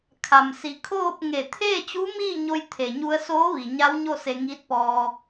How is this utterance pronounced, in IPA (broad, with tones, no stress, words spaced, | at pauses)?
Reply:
kʰa˩msi˩˧kʰoː˥˨p̚ ŋe˧˩ t̪ʰeː˥˨t͡ɕu˧˥miː˥˨ɲo˧j t̪ʰe˩ɲu˧ə̯soː˧˥ ʋi˩ɲa˧˥wɲo˥˨ se˧ŋiː˧˥t̚pɔː˧